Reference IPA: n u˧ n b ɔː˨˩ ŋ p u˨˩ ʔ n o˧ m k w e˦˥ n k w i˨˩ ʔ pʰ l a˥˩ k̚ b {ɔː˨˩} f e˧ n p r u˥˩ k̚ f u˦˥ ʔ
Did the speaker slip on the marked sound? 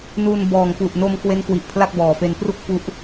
no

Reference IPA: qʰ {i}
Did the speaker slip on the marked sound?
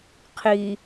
no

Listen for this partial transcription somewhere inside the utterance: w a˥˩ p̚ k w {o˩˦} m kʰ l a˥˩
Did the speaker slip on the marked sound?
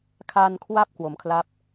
no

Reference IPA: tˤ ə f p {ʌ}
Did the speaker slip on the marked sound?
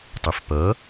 no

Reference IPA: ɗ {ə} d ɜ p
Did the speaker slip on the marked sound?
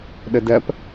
no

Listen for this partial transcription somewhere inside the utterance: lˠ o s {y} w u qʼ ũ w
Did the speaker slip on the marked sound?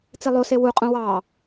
yes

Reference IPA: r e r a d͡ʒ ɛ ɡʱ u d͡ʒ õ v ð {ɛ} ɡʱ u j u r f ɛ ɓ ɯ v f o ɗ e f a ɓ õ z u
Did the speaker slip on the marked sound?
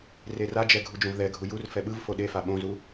no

